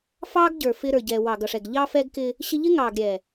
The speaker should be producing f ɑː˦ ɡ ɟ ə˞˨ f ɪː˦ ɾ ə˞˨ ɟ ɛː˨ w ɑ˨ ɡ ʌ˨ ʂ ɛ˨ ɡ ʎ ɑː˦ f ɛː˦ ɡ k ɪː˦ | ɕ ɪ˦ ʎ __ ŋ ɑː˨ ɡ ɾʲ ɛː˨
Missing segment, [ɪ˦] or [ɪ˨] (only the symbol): ɪ˦